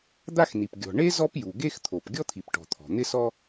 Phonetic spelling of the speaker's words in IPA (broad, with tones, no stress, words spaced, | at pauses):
d̪a˥xni˩p ɡʲɔ̤˩ɳe˥ zɔ˥pju˩ɡe˥x t̪ʰo˩p ɡʲɔ˥t̪ʰi˩pʈɔ̤˩ t̪ʰɔ̤˩n̪ɪ˥sɔ˥